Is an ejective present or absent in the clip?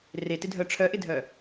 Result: absent